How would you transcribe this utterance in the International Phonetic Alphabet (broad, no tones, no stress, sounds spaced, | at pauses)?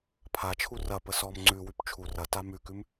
pʰ a t͡ʃʰ u r ɐ p ə s ɔ m ŋ͡ǀ ʉ w ʉ p t͡ʃʰ u r ɐ t a m ʉ k ʉ m